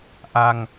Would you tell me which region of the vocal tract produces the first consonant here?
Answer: throat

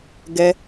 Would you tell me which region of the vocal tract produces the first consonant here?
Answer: velum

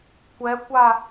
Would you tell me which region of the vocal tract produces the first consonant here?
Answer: velum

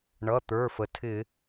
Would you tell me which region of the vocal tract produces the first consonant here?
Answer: retroflex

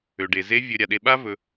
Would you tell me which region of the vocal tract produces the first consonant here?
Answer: retroflex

